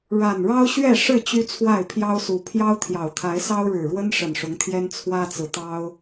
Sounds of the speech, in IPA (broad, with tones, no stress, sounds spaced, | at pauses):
ɻ a˨˩ n ɻ ɑ˦ ʊ̯ ɕ ɥ ɛ˥˨ ʂ ɻ̩˥˨ t͡ɕ y˦ t͡sʰ w a˥˨ ɪ̯ pʰ j ɑ˦ ʊ̯ s u˨˩ pʰ j ɑ˦ ʊ̯ t̪ʰ j ɑ˨˩ ʊ̯ t̪ʰ a˨˦ ɪ̯ s ɑ˦ ʊ̯ ɻ ɻ̩˨˩ ɻ w ə˦ n ʂ ə˨˩ n ʂ ʊ˨˦ ŋ t̪ʰ j ɛ˦ n t͡sʰ w ä˦ t͡s ɹ̩˨ t̪ ɑ˦ ʊ̯